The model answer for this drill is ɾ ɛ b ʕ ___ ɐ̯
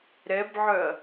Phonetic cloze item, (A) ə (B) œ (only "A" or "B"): B